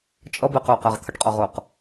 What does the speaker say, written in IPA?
t͡ʃʼ ʌ b ɪ q ʊː q æ ʁ t̪ʰ ə ʈ qʼ ɒ ʁ ʊː q

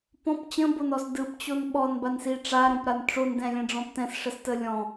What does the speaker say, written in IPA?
p ɔ̃ p t͡ɕ ə̃ b o n ɔ s d ɯ p t͡ɕ o n ɓ ɔ n b a n s i ʈ͡ʂ a ɾ õ p ɾ a n ʈ͡ʂ o n d ɛ̃ lʲ ɛ̃ ɖ͡ʐ ɔ̃ p t ɛ̃ s ʂ ə s t ə lʲ ɔ̃

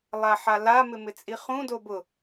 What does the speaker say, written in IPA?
lˠ a ħ a l a m ɪ m ɪ t͡sʼ i χ ũ d o b ʊ

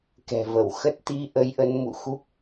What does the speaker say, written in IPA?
k ɛ̤˨˩ v ə˧˩ w x ə˦˥ t̚ t̪ i˧ ʔ ə˨˦ j ʔ ə˨˦ n m ṵ˧˨ x u˦˥ k̚

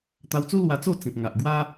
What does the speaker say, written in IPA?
t̪ a˧ w t͡s u˦ l w a˧ t͡s o˥˧ t͡s ĩ˨ p̚ ŋ a˨ ʔ ɡ w a˦

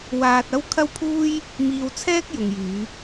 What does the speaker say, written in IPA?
w aː˧ t̚ ɐ˥ w kʰ ɐ˥ w pʰ uː˥ j | m iː˧ w t͡sʰ ɛː˥ k̚ j ʊ˨ ŋ j yː˨˧

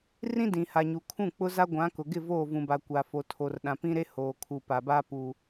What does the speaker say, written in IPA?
r ĩ˦ d ĩ˨ h a˨ ɲ u˨ kʰ ũ˦˨ k͡p ʊ˦ z a˦ ɡʷ ã˨˦ k ʊ˨ ɡ ɪ˦˨ v oː˦˨ v ũ˨ b a˨ kʷ a˨ f o˨ tʰ o˨ r ɗ ã˨ p ĩ˦ ɾ e˦ h oː˨ kʰ u˨ p a˨ b a˦ p u˨

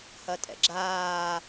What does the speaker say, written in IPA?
h ɐ tʼ ɛ̰ ɡ͡ǁ aː

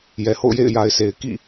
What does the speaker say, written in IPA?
j ɛ˨ h o̰˦˨ ʊ̯ j ḛ˦˨ ɪ̯ j a˨ ɪ̯ sʰ e˨ ɪ̯ k ḭ˦˨

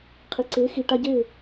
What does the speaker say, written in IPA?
qʰ i˨ ǀ eː˨˦ x i˨ ʈ a˧ ɟ e˦˨

